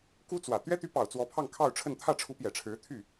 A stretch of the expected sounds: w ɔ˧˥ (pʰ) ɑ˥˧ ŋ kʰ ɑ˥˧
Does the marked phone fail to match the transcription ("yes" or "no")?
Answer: no